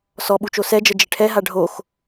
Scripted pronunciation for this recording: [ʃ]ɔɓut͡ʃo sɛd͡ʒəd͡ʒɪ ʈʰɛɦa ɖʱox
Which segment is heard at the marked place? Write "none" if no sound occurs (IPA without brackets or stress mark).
s